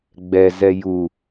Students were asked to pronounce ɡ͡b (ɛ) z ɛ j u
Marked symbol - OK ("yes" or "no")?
yes